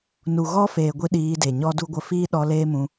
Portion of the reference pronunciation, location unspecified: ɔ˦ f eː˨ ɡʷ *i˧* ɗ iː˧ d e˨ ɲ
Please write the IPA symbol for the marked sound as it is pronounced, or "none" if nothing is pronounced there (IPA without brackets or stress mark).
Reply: i˧